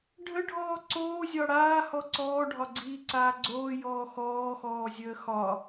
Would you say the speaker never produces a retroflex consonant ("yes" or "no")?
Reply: no